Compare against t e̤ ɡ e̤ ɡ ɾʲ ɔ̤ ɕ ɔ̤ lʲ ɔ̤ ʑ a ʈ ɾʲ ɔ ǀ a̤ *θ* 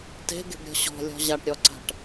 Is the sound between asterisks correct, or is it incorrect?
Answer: incorrect